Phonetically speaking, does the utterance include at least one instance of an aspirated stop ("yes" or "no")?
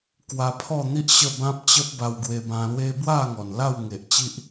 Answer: yes